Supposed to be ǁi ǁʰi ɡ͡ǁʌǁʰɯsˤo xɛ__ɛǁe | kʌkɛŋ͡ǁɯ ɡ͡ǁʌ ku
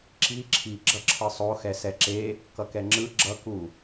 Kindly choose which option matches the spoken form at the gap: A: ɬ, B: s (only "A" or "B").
B